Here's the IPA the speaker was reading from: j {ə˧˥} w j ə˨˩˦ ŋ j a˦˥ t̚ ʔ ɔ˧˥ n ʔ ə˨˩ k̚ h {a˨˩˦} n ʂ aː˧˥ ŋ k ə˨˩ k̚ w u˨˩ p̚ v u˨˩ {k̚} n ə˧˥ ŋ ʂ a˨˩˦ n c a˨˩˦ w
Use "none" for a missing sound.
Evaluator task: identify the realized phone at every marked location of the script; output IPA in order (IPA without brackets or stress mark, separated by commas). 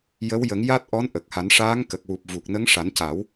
ə˧˥, a˨˩˦, k̚